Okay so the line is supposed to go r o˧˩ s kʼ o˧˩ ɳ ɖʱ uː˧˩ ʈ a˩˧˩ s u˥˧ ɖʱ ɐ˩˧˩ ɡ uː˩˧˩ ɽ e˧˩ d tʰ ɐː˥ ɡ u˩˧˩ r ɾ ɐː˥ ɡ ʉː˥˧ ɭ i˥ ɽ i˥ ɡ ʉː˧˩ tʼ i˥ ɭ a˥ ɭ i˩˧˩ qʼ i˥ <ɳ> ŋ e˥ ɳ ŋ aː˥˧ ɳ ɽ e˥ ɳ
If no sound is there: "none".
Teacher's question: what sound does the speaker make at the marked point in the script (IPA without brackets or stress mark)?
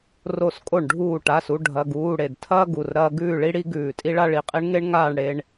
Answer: ɳ